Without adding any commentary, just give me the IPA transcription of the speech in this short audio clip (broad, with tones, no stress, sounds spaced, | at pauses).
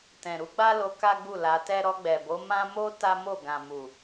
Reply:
t ɛ̃˨ ɾ u˧ ɡ͡b a˦ l o˧ k a˦ ɡ͡b u˦˨ l a˧ t ɛ˦ ɾ ɔ˧ ɡ͡b ɛ˨ b o˨˦ m ã˦ m o˦ t a˦ m o˦˨ ɡ ã˨ m u˨